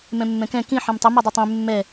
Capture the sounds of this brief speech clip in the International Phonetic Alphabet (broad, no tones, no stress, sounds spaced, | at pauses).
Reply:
m ɛ̃ mː ɛ̃ k ɛ̃ k ĩ ħ ẽ m tˤ ə m ɛ dˤ ɛ tˤ ẽ mː ɛ